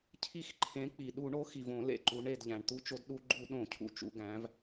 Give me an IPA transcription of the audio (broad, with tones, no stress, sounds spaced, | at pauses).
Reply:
cʰ i˦˨ x ǃʰ ẽ˨˥ k͡p i˩ ɗ u˧˩˧ ɳ o˨˥ x i˩ v õ˧˩˧ l ḛ˩ ǃ u˩˧ ɳ e˩ d ʎ æ̃˩ ɳ t̪ u˨˥ t͡ʃ o˩˧ d ɗ u˧˩˧ ɡ͡ǃ u˧˩˧ ɗ õ˧˩˧ cʰ ṵ˩˧ t͡ʃ ṵ˩˧ ɡ æ̃˩˧ v